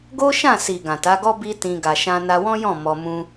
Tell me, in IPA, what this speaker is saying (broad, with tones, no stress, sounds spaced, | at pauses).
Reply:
ɡ o˦ ʃ ã˦˨ s i˨ ɡ ã˨ t a˨˦ ɡ ɔ˦ b i˦ t ĩ˧ ɡ a˨ ʃ ã˧ n a˧ w ɔ̃˦ j ɔ̃˦˨ m ɔ˧ m ũ˦